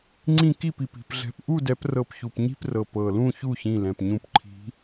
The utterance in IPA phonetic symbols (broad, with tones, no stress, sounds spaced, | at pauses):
ŋ͡ǀ ĩ˥˧ k i˥˩ p i˩ p i̤˥˩ p ɮ ɛ̤˨˦ p ʔ u˥˧ d ɛ˨˦ p r ɤ˧˩ p ç u˩ p ɲ i̤˥˧ p r ɤ˩ p ɤ˩ l ũ˥˧ ç u˥˩ ç ĩ˧˩ l ɛ̃˩ p ɲ ũ˧˩ p ǃʰ i̤˨˦